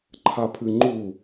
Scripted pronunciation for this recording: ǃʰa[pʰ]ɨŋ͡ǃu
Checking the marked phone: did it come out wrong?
no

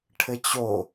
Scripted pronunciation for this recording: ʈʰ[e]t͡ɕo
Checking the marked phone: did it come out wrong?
yes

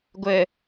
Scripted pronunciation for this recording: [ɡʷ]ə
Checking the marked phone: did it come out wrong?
no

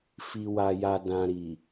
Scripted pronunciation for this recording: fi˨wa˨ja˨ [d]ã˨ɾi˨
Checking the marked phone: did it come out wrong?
no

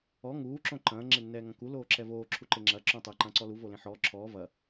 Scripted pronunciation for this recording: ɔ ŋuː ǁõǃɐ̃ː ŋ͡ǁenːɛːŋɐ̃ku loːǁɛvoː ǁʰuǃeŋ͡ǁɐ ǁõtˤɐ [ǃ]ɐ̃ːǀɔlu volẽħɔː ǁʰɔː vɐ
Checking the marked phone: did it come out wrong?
no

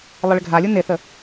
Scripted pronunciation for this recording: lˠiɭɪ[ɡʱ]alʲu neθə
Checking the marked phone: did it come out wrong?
no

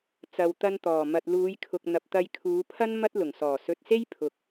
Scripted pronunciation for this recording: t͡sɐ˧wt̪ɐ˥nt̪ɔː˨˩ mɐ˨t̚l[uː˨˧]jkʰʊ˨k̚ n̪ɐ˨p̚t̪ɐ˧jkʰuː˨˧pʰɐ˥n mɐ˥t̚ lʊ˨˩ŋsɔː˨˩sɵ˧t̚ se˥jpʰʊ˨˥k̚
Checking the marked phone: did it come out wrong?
no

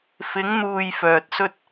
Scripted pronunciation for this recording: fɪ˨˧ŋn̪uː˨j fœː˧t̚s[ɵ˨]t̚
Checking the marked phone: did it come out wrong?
yes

